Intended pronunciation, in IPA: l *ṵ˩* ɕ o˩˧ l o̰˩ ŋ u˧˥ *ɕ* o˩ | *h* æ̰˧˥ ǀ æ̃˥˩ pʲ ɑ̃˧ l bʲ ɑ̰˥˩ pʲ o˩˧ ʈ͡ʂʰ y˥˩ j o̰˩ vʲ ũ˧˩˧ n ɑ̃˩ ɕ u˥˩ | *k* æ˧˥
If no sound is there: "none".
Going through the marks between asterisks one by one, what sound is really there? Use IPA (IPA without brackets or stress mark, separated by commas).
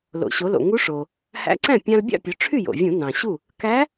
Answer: o̰˩, ʂ, h, k